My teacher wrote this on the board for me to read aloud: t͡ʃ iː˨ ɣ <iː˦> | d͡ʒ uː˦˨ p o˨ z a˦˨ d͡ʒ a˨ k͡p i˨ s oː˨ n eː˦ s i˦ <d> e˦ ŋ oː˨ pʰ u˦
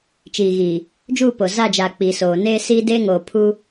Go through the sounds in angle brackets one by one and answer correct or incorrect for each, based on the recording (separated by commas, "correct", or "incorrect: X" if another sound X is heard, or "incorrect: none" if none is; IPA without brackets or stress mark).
incorrect: iː˨, correct